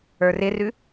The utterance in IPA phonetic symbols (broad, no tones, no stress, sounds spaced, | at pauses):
ə˞ r ɪ r ʉ